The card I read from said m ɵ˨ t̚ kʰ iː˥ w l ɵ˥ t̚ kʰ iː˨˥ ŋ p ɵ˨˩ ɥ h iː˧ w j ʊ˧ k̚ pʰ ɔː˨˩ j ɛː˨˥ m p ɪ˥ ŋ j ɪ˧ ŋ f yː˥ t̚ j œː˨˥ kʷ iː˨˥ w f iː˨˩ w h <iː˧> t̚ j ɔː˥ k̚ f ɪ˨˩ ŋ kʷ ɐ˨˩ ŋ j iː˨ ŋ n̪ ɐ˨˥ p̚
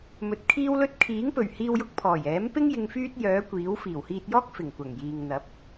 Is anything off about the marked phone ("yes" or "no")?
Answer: no